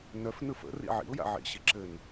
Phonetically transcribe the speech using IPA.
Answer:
nœfnɯ fə̰rḭ ʕḭʊ̯ja̰ ʕḭɕi ǁɘn

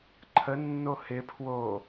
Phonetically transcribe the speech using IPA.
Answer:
ǃʰənːo hɪpʰwo

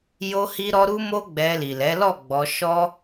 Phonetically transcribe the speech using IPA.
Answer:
jo˦hi˦ɾɔ˦ ɾu˦mo˦ɡ͡bɛ˧ li˨lɛ˨˦lɔ˦˨ɡ͡bɔ˧ ʃɔ˦

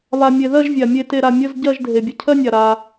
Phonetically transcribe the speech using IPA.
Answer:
βa˨mʲe˨ðɜ˥˧ʒ vʲa˨ mʲe˥˧te˥˧ɾa˥˧ mʲə˧˥˧z ɟɜ˥˧ʒ dʱe˨bʲə˧˥˧ cʰɜ˥nʲa˨ ɾa˨

